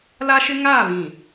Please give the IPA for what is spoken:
l a˦ ʃ ɪ˦ ŋ aː˦˨ β ĩ˨

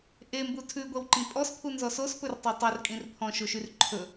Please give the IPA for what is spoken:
ʔ e m b u tʰ ʉ ɡʷ ɛ w ǃ ĩ pʼ ɔ s pʰ u n z ɔ s o s p ɵ r tˤ o tˤ ɵ r kʼ ĩ r pʰ ɔ̃ ʃ o ʃ y r ǃʰ ɵ

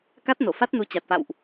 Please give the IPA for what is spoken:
k a˦˥ t̚ n o˧˩ f a˦˥ t̚ n u˨˦ t͡ɕ a˨˩ t̚ f a̰˧˨ w ʔ

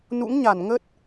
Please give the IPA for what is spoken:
n ṵ˧˥ ŋ ɲ a˧˩ n ŋ ə˦˥ t̚

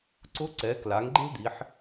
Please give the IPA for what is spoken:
ǀ ʊ˧˥ ǀ ɛ˩˧ k l a˩˧ ŋ ɡ͡ǃ e̤˥ d̪ i˩˧ ħ

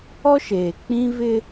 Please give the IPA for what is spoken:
ɔ˦ ʃ eː˨ k͡p ĩ˦ v ɪ˦

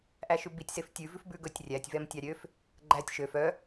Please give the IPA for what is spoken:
ʔ æ ʃ ʉ b i tʲ s e f tʲ ʉ v ʉ f b ʉ ɡ ɵ tʲ rʲ æ tʲ v ɛ m tʲ ɑ ɾʲ ø f | ɡ͡ǃ æ tʲ ʃ ø f œ

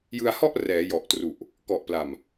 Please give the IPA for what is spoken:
j ɯ˧ a̯ h ɔ˥˩ ʔ r ɛː˩˦ j ɔ˨˩ ʔ t r u˨˩ ʔ | k ɔ˨˩ ʔ p l a˨˩ m

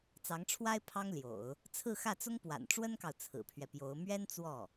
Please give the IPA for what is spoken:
t͡s ɑ˧˥ ŋ ʈ͡ʂʰ w a˥ ɪ̯ pʰ ɑ˥ ŋ l j o̰˨˩˦ ʊ̯ | t͡sʰ ɹ̩˥˧ x ä˥˩ t͡s ʊ˥ ŋ p w a̰˨˩ n ʈ͡ʂ w ə˥ n k ɑ˨ ʊ̯ t͡sʰ ɹ̩˨˩ pʰ ɥ ɛ˦ p j o˧˥ ʊ̯ m ɥ ɛ˥ n t͡s w ɔ˥˩

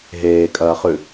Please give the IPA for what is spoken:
ɦ eː kʼ ɐː χ ʉ

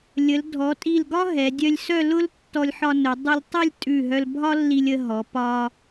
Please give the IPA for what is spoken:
lʲ ə˩˧ l dʱ ɔ˩˧ tʼ i˧˩ l ɡ ɒ˥ ɦ ɛ˩˧ dʲ œ˧ lʲ s œ˥˧ l ʊ˥ l tː ɔ˧ lʲ ħ ɒ˧ n ʊ˩˧ dˤ ʊ˧ lʲ tˤ ə˥˧ lʲ tʼ ʉ˧˩ ɦ œ˧ l bʱ ɒ˥ lː i˧ lʲ ə˧ ɦ ɔ˩˧ p ɒ˧

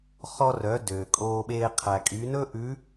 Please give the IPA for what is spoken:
χ ɔ˧ r œ˩˧ d øː˩ kʼ oː˧ ɓ eː˧ qʰ æ˩ kʼ y˩˧ n ɵː˥ ʔ ʉ˧˥

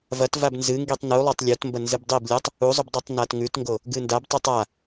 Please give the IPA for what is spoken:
v ɐ t v a b n z ɨ ŋ ɡ i tˤ n u lˠ o tˤ lʲ o t m b ɐ n z ɨ b dˤ i b lʲ o tˤ | u zˤ ʉ b dˤ i tˤ n a t ŋ ʉ t ŋ ɡ o | ɡ ɨ n d a b tˤ ʉ tˤ a

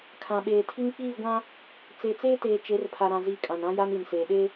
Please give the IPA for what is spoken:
kʰ ã˨ ɓ eː˨ tʰ i˦ ŋ k͡p iː˦˨ ɡʷ ã˦ | t͡s e˨ t͡s eː˦ t eː˨ t͡ʃ e˨˦ r pʰ a˨ ɾ ã˨ z i˨ kʼ ã˨ n ã˦ j a˦ n i˨ n s eː˨ ɗ e˦

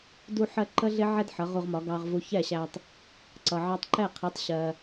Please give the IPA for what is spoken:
d u˥ ħ ɜ˥ ǃ ə˥ ɮ ɪ˥ ʕ ɛ˥ d ħ ʌ˩˥ ʁ u˧ ʁ m ɒ˩˥ ɡ ɑ˧ ʁ v u˧ ç ɛ˥˩ ɕ æ˧ tˤ | ǀ ʌ˩ ʕ ɑ˧ tˤ ǃ ɛ˥˩ qʰ i˩˥ tˤ ɕ ɜ˩

